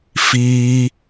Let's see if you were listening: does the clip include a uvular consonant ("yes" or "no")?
no